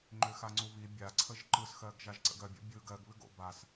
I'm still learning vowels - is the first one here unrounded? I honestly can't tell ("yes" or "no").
no